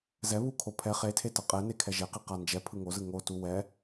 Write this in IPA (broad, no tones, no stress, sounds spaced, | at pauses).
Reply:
z ɛ β u kʰ o pʰ ɛ χ e tʰ e t ʌ qʼ ɛ n e kʰ ɛ ʒ e q i q a n d͡ʒ ɛ pʰ ɯ ŋ o z ɯ ŋ o t u w ɛ